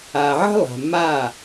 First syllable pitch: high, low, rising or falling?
low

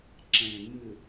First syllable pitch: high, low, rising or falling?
low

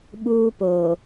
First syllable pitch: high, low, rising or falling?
high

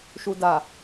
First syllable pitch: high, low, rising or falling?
low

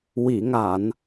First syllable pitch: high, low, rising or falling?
low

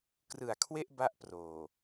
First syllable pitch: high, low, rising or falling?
low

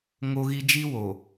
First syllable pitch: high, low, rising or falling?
high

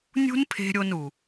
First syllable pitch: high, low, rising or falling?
high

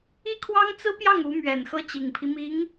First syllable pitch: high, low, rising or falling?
high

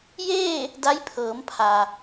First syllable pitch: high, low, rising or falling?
falling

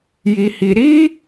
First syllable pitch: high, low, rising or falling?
high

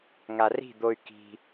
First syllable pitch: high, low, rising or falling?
low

